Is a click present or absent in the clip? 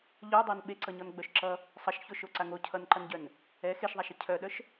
present